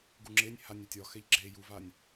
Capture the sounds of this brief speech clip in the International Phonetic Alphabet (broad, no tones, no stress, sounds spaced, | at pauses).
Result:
ɡ u ŋ͡ǁ e nʲ h a nʲ ɛ tʲ ɒ x ɛ ʎ ɡ͡ǁ e j u v a nʲ